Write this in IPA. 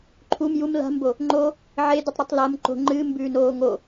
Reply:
ǃʰum jum la̤mbo | ŋ͡ǃo | ʕedutˤɾʉtˤ lɐm ǃo̤ ŋ͡ǃɨːmbʉːnoː ŋo

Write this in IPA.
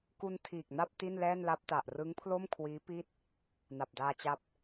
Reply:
ku˧ntʰiː˨˩k̚na˥˩p̚ ti˥˩nlɛː˥˩nla˦˥p̚ta˨˩ʔ rɯ˦˥ŋ pʰlo˥˩mkʰwiː˦˥ pi˥˩t̚ | na˨˩p̚daː˧t͡ɕa˦˥p̚

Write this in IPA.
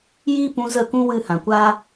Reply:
jiː˦pũ˧zə˦˨ kũ˦wɨ˦˨hã˨kʷaː˦

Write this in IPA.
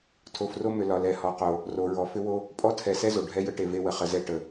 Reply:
tʰo˨fro˦mʏ˨ lɒ˨lɛ˨ hɔ˨qo˨ | ro˨ɹɔ˨ fʏ˦wo˦ | pʼɔ˦tʰɛ˨ sɛ˦zo˨ ɖʱɛ˦jə˦ʈe˨ ve˦wə˨χə˨zɛ˦ ʈə˨

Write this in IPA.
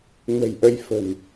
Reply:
nə̤˨˩jʔə˧jfə̤˨˩n

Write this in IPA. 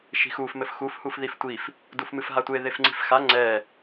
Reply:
ʃi̤xuf mɘfxuf hufðiftʷif | dufmɨfɦatʷe ðefŋ͡ǀi̤fxa ŋ͡ǀɛ

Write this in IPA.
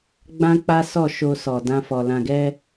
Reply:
ɡ͡bã˦k͡pa˦sɔ˦˨ ʃo˧sɔ˨ dã˧fɔ˨ lã˨ɡɛ˧

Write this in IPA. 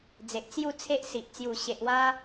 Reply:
d͡ze˨ʔt͡sju˥˧t͡sʰe˦ʔsi˨ʔ t͡sju˨˩ɕe˨ʔwa˧

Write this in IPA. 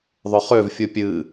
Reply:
ðˤʊχøv fʲupʲɨ

